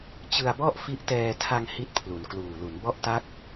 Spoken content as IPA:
t͡ɕ ɯ˧ a̯ b ɔ˥˩ ʔ f i˦˥ ʔ t ɛː˧ tʰ a˧ ŋ h i˦˥ t̚ pʰ l u˩˦ n k l uː˨˩ l u˩˦ n b ɔ˦˥ ʔ t a˦˥ k̚

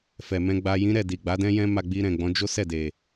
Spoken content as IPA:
f ɛ˨ m ɛ̃˧ ɡ͡b a˧ j ĩ˦ ɾ ɛ˦˨ d i˨ ɡ͡b a˨˦ d ɛ̃˦ j ɛ̃˦ m a˧ ɡ͡b i˧ ɾ ɛ̃˨ ɡ͡b ɔ̃˨˦ d͡ʒ o˦ s ɛ˦˨ d e˨

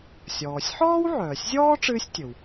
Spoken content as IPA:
sʲ ɔː˩ sʲ ħ ɔː˥ w ʕ œː˩ sʲ zʲ ɔː˥ ʈ͡ʂ ɨː˥ sʲ tʲ ɵ˩ w

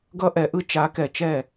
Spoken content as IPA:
ɡ ʌ˧ ʔ ɛ˨ ʔ ɯ˦ t͡ʃ a˨˦ k ɛ˨ t͡ʃ ɛ˦˨

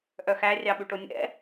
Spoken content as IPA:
ʔ œ x æ rʲ ɑ ɓ ʉ ʈ o nʲ ɛ̰

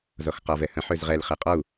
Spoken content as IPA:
z ɔ x q ɒ v ɛ h ə̃ ħ ø z ʁ ɛ l χ ɛ qʼ ɔ u̯

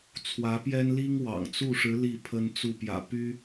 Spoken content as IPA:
t͡sʰ w ä˧˥ p j ɛ˥ n l i˥ ŋ w ɑ̰˨˩ ŋ t͡s u˥˩ ʂ ɻ̩˧˥ l i˥˩ pʰ ə˥ n t͡s u˥˩ p j ä̰˨˩ p y˥

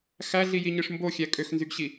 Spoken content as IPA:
x æ ɮ i j i ɲ ɯ ʂ m b o xʲ æ kʼ ø x n z y ɡ ɕ i

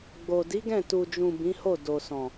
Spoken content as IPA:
ɡ͡b o˨ d i˨˦ ɡ ɛ̃˦˨ t u˨ d͡ʒ ũ˨ b ĩ˨˦ h o˦˨ d o˨ s ɔ̃˨

